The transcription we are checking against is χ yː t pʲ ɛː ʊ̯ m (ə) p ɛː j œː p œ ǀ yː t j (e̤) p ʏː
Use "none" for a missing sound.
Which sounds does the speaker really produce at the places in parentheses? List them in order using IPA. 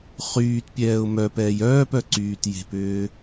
œ, e̤

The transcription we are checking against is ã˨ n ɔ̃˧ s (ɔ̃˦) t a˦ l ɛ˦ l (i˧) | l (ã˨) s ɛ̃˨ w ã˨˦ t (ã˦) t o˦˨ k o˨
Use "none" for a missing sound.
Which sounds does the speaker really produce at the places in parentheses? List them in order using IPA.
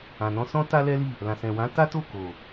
ɔ̃˦, i˦˨, ã˨, a˦

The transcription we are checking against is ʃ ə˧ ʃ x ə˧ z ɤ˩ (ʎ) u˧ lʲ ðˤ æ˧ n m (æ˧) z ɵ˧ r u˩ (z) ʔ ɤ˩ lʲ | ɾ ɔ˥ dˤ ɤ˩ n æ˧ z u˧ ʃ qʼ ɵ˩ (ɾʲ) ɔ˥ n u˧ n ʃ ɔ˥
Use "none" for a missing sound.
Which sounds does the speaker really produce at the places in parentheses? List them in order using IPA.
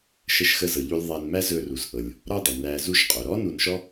ʎ, æ˥, z, ɾ

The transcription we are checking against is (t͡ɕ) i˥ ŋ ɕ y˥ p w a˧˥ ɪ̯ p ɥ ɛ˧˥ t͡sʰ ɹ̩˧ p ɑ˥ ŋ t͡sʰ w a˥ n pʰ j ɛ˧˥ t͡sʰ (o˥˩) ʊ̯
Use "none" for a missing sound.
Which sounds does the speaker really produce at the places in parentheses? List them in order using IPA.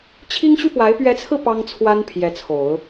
t͡ɕʰ, o˨˩˦

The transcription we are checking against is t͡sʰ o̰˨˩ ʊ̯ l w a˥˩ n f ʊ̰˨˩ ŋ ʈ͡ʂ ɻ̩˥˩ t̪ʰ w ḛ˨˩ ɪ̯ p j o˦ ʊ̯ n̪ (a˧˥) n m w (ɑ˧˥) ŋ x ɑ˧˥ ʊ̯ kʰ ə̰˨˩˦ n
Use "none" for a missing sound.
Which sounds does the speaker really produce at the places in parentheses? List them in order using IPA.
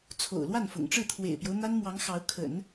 a˥, ɑ˧˥

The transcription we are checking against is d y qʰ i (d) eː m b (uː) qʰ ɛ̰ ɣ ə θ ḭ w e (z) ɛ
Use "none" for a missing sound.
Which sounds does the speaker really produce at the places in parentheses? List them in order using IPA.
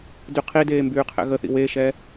d, yː, ʃ

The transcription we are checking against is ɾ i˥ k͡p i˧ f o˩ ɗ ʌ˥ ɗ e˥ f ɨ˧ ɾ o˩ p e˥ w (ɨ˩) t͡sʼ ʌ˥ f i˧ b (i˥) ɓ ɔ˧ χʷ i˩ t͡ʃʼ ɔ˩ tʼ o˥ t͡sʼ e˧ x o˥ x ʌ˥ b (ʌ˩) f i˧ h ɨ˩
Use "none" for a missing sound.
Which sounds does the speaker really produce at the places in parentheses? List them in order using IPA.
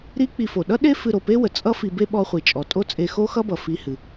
ə˩, e˥, ʌ˩

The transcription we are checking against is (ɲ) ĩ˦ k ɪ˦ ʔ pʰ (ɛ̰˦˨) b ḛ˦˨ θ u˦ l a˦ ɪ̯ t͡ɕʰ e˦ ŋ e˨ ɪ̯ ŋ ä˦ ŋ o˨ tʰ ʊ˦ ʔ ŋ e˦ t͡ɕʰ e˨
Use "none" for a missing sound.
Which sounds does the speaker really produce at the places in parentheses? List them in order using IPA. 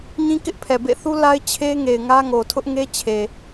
ɲ, ɛ˨

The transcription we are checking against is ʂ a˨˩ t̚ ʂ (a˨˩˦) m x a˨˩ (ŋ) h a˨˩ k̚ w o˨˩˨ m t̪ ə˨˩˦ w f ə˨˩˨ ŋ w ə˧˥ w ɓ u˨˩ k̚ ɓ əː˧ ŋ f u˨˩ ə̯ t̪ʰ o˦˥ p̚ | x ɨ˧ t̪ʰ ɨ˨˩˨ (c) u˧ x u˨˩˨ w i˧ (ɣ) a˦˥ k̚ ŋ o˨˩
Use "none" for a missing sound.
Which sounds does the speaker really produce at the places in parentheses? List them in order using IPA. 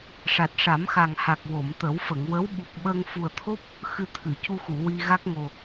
a˨˩˦, ŋ, c, ɣ

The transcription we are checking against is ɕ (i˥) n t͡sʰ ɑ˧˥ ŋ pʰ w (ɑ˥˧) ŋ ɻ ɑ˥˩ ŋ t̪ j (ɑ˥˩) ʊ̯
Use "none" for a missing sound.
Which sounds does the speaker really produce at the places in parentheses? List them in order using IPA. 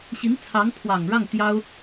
i˧˥, ɑ˨˩, ɑ˥

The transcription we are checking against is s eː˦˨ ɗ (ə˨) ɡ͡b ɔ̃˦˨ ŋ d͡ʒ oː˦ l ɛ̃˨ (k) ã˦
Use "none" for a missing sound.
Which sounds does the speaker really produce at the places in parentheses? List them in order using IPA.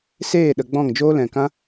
ə˨, k

